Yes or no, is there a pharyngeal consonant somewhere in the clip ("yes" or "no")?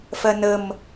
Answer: no